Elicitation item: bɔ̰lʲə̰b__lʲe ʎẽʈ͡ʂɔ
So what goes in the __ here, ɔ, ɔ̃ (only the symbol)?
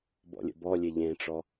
ɔ